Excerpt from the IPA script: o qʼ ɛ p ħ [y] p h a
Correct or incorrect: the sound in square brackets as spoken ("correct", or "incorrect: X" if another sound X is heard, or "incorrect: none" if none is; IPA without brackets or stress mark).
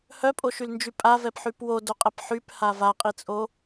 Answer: correct